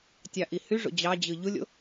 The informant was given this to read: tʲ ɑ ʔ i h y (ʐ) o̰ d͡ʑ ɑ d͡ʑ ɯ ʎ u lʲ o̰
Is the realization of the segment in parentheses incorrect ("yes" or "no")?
no